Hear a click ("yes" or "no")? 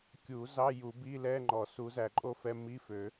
yes